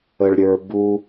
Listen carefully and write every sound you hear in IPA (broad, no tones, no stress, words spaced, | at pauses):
əɭɾʲə˞bu